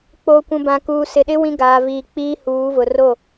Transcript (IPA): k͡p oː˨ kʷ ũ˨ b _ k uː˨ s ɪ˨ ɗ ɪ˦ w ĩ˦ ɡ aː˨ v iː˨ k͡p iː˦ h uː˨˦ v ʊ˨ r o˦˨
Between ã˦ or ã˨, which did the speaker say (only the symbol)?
ã˨